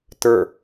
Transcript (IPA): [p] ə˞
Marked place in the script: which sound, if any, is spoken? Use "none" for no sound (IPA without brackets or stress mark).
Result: t